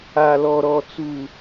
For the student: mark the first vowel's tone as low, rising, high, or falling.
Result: low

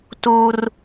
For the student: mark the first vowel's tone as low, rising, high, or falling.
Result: high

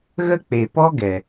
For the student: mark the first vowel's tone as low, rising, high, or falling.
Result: high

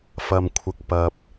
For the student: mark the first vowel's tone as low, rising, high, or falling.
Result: low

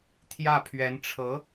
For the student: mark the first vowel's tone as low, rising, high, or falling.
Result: falling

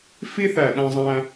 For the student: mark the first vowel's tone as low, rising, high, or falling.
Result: high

